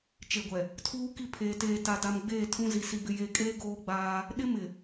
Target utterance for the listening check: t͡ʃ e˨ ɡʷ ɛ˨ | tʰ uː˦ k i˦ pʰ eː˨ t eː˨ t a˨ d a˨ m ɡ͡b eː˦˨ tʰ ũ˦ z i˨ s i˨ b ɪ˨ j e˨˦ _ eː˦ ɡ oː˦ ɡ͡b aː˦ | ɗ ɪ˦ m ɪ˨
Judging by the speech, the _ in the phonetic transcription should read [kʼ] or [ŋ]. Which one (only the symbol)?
kʼ